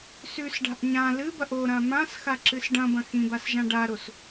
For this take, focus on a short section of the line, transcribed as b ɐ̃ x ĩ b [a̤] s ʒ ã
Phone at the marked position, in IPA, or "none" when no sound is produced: a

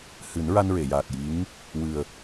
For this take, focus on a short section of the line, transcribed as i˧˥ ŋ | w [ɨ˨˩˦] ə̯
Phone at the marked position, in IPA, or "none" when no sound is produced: ɨ˨˩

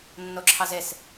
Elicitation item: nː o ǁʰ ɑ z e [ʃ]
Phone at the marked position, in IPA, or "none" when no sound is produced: s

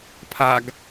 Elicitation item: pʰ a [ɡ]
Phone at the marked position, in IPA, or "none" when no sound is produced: ɡ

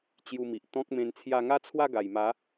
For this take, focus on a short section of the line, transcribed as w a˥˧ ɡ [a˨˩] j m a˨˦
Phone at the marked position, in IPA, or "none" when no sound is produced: a˨˩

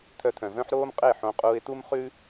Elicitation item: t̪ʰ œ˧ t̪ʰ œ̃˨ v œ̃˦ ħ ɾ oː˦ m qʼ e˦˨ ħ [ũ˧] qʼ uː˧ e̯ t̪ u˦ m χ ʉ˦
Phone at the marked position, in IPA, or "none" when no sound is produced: õ˧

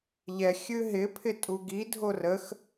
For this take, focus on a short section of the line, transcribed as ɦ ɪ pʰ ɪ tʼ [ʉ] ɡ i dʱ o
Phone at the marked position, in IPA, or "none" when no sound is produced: u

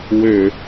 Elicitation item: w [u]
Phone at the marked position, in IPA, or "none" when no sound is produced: ø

